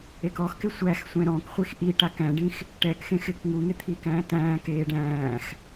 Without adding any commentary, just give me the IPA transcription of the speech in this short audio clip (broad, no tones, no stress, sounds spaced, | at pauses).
e k ɔ x k ɪ sʷ æ x sʷ ɛ̃ ɾ ɔ̃ k χʷ i x ʔ i ʈ a k æ̃ ɖ ĩ x | ʈ ɛ k x ẽ x ɪː k ŋ u ŋ ɪ t̪ʰ i k æ̃ː t æ̃ː k eː ɖ æ̃ː x